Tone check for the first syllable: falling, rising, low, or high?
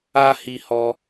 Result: high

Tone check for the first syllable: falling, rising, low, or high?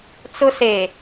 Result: high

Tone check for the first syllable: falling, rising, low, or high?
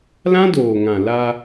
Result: high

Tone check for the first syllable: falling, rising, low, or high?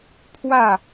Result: falling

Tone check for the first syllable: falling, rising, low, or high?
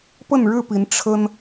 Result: falling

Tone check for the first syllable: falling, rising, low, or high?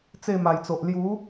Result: falling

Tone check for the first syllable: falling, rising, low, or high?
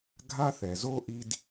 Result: high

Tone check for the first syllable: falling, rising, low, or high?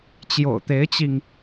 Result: low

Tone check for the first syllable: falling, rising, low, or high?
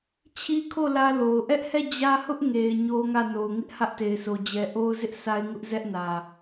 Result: high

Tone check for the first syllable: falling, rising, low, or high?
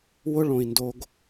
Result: high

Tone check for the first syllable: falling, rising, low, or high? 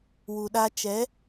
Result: low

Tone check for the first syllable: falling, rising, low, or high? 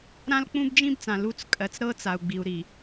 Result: high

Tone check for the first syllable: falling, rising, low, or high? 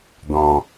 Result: low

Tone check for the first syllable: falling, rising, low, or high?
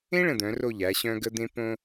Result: high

